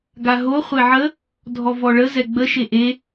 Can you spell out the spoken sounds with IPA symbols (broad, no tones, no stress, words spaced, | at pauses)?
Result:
ɡaɦo χʷeʕə | dʱɔvɔɭə zɛɡ͡bə ʃeʔe